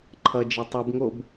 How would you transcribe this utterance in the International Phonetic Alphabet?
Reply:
ǃʰʌd͡ʒe tˤubŋob

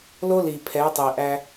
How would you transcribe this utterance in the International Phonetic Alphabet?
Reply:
lo˦li˨pʰɛ˨˦ tˤi˨ʔæ˦

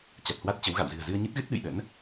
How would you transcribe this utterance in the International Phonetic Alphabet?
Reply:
t͡ɕa˨˩t̚hwa˦˥t̚t͡ɕə˨˦wɣa̰˧˨w zɨ̤˨˩ə̯zɨ˧ə̯ɲɨ˦˥t̚ɣɨ˦˥t̚ ɗɨ̰˧˨jɗə̰˧˥n

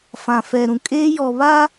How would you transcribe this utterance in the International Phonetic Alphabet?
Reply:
fã˨fɛ˨ɾũ˨ kʼeː˦jɔ˨ βa˦

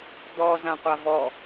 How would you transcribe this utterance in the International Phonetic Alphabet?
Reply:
d̪ɔ zãqʷavɔ

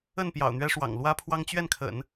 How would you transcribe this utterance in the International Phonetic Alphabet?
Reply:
ə˥˩n pjɑ̰˨˩ʊ̯n̪ɥɛ˥ʂwɑ̰˨˩ŋ lwä˥pʰwɑ˥ŋ t͡ɕɥɛ˥˩nkʰə̰˨˩˦n

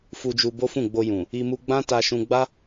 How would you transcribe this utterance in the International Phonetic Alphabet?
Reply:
fu˧d͡ʒu˧bo˦fũ˦˨ ɡ͡bo˧jũ˨ | i˧ mu˧ɡ͡bã˦ ta˧ʃũ˧ ɡ͡ba˦

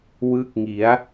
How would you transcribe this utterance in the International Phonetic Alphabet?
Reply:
wɯ˦˥k̚ŋi˩˦a̯

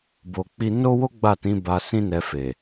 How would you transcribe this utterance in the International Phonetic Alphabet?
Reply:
bo˧k͡pi˦ no˦wo˦ ɡ͡ba˦˨tĩ˨˦ ba˧sĩ˦ nɛ˧fe˨

